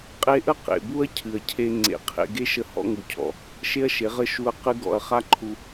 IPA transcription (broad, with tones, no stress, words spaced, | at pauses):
qʼe˧ʔə˦ qḛ˨bu˦ɐ̯ cʰɨ˨ɐ̯cʰe˧ ŋ͡ǀḛ˧qʰḛ˦ ɡe˦ʃə˧ hɔ̰˧ŋu˨cʰɔ̰˨ | ʃe˦ɐ̯ʃe˨˦ʁə˦ʃu˧ɐ̯ qɨ˦ɡɔ̰˧ɐ̯ χa˦ǃʰu˧